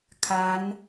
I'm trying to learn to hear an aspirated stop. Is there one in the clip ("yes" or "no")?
yes